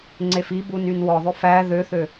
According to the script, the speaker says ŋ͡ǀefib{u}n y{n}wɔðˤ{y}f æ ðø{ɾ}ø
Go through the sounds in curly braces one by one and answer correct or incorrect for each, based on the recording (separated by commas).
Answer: correct, correct, incorrect, incorrect